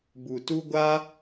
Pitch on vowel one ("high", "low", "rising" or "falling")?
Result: low